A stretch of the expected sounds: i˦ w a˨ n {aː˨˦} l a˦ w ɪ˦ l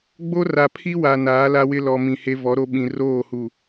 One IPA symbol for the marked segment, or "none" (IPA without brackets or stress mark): aː˨˦